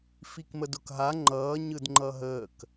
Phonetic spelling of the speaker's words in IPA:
f i k m ə d ʊ k ɦ a ŋ͡ǃ ʌː ɲ ɯ d ŋ͡ǃ ʌ ɦ əː k

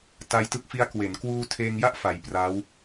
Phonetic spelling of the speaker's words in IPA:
t a˧ j t ɯ˦˥ k̚ f i˦˥ a̯ k w e˩˦ n k w uː˧ tʰ eː˧ ŋ j a˥˩ ʔ f a˨˩ j p r a˦˥ w

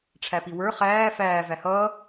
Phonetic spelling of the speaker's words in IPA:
ʈ͡ʂʰ æ p i w ə˞ χ æː f æː v æ h ʌː

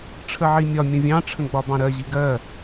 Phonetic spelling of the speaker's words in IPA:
ʈ͡ʂʰ ə ʕ i mʲ ɒ mʲ ə̃ vʲ ɑ̃ ʈ͡ʂʰ ə̃ ɡ͡b ɒ b ɑ̃ ɾ ɜ ʑ i ɡ ɜ

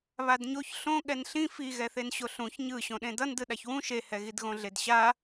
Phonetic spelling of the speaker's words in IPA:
β a d ɲ o ç ɬ õ ɠ ɛ n ɬ ĩ f i ɣ ɛ θ e n ɕ o ɬ ũ ç ɲ ɯ ɕ õ ɗ ẽ d ʌ n d ɯ ɗ a ç w ũ ʃ e h ɛ ɣ i d ɣ õ ɮ e d ɕ a

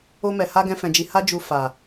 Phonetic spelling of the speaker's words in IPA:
o˧ m ɛ˨ h a˧ ɡ ɛ̃˦ f ɛ̃˧ d͡ʒ i˧ h a˦ d͡ʒ u˧ f a˨

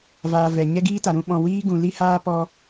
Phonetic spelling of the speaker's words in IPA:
v aː˧ v ɛ˨ ɲ ɛ˦ ɡ iː˦ t a˨ ɾ ũ˦ ɓ ɔ̃˧ w iː˦ ɡ ũ˨ l i˦ h aː˦ p ɔ˧

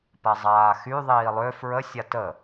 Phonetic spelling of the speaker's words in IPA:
p a zˤ aː x y ðˤ iː lˠ ø f ɹ ə sʲ a t ə

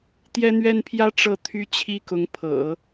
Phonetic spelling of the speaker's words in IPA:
t̪ j ɛ˥ n̪ ɥ ɛ˥ n pʰ j ä˥ ʈ͡ʂ ɤ˥˩ t̪ʰ y˥ t͡ɕʰ i˥ k ʊ˧˥ ŋ pʰ ɤ̰˨˩˦

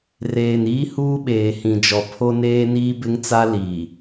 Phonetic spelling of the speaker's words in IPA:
r eː˨ n iː˦ h uː˦ ɓ eː˨ h ĩ˨ d͡ʒ ɔ˨ pʰ o˦ n eː˦ n iː˦ b ɪ˦ ŋ t͡s a˦ l i˨

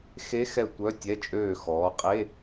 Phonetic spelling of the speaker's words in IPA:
x e˧˥ x ɛ˧˩ tʷ œ˧˥˧ tʲ ɛ˧˥˧ t͡ʃʼ øː˧˩ x ɔː˩˧ qʼ e˧˥˧

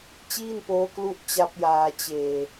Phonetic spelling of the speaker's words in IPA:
t͡ɕ iː˥˩ n p oː˦˥ k l u˦˥ ʔ t͡ɕ a˦˥ p̚ j aː˧ t͡ɕ eː˧

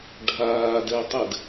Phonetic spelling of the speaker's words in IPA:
ɖʱ aː d ɛ tˤ ɘ d

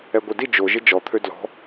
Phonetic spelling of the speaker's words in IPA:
ɛ ɡʷ e d i d͡ʒ o ʒ ɪ d͡ʒ ɔ t̪ʰ ø d l ɔ̤

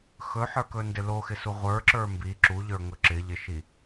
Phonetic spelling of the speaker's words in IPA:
x ɵ ħ ə˞ k ɵ n d ɪ l o x ɪ s u ʁʷ ə˞ ǁ ə˞ m b i ǁ u ʎ ə˞ ŋ ɵ ǁ ɪ ʎ ɪ ʃ i

